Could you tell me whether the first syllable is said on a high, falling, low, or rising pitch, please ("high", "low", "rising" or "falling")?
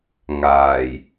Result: low